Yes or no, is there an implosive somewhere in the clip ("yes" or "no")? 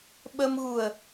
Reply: yes